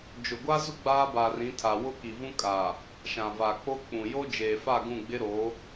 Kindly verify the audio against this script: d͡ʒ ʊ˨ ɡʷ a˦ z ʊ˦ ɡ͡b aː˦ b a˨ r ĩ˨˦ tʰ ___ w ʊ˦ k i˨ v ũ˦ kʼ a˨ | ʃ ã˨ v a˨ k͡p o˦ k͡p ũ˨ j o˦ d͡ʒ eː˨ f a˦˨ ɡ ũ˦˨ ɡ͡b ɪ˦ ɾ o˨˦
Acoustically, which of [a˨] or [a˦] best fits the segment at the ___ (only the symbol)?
a˨